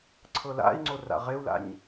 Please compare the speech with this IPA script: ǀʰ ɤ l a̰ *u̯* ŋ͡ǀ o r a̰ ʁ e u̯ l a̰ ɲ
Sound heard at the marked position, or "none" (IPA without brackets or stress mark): i̯